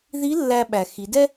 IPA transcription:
ði˧˥ lːæ˧ɓæ˩ xi˩˧dɛ˥

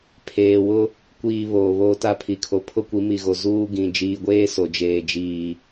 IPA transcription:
pʰeː˨wʊ˦ | kʷiː˨ βoː˨βoː˦ta˦ pʰi˨kʰo˨ pʰʊ˦kʷi˨˦mi˨ɣo˨ zuː˦ɡĩ˨ d͡ʒiː˨ɡʷeː˦ so˨d͡ʒeː˨ d͡ʒiː˨

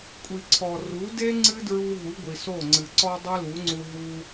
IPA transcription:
kʷʼi˨ǀʰɔ˨ ru˨˦de˦ ŋ͡ǀɨ˦dɹu˧ ɦu˨˦ɡʷi˨so˦˨ŋ͡ǀɨ˨ ǀɔ˧ dˤɨ˦lu˨˦ŋ͡ǀu˧ ɦu˧

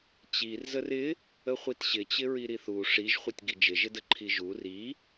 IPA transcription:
t͡ɕir zərɪ | əχʷitɕɪt͡ɕɪ ɹiɾiθu ʂiʒχʷɪtʲ ɡid͡ʒɪʒɪdə ǃʰiʒu ri

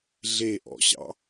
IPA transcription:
ɮeʔɔ̰ɕɑ̰

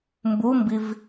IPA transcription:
mbumbiv

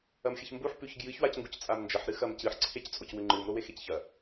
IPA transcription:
ɐmxʲɐçmbuħ pʉçɡjɨç wacŋɡuct͡sʼamnd͡ʒɐħ ɾɨxɐmcɨħ ǀʰect͡sʼocwʉŋ͡ǃɨm ɾowexecçɐ

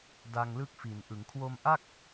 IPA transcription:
da˧ŋlɯ˦˥k̚fi˩˦nʔɯ˩˦ŋ kʰwo˧mʔa˥˩k̚

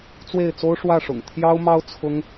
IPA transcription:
t͡swe˥˩ɪ̯t͡so˥ʊ̯ ʂwä˥˩ʂʊ̰˨˩ŋ t̪ʰjɑ˥ʊ̯mɑ˥ʊ̯ t͡sʰʊ˥ŋ

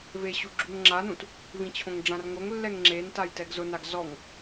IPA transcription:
veɕu ɡ͡ǁuŋŋ͡ǁanũt | vĩt͡ɕʰõŋɖ͡ʐãrŋoŋ lːɛŋŋ͡ǁen tajtɛɡzʊnaɡ zɔŋ

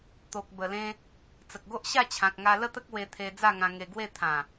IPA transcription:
t̪o˨k̚bə˨˩lẽ˧ | t͡sə˨k̚ɡo˦ʔɕa˥˧t͡ɕʰã˨k̚ ŋa˧lə˥˧t̪ə˦k̚ we˧t̪ʰe˧ d͡za˥˧ŋã˧ŋe˧ɡwe˥˧ t̪ʰã˨˩

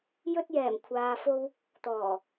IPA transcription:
jɵ˥t̚jɛː˨˩m kʷʰaː˧fo˥w | t̪ɔː˨˩

